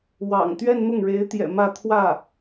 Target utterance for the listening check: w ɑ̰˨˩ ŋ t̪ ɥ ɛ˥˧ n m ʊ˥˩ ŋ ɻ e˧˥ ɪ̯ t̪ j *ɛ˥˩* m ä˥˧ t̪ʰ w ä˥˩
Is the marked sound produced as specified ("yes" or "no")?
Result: no